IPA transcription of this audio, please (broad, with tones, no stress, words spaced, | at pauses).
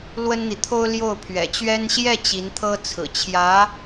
lwə˥nn̪i˨t̪ʰo˥ʊ̯ ljo˥˩ʊ̯pʰɥɛ̰˨˩t͡ɕɥɛ˥n ɕjɛ˥˩ t͡ɕi˧˥nt̪ʰɤ˥ t͡sʰɹ̩˨˩t͡ɕʰjä˧˥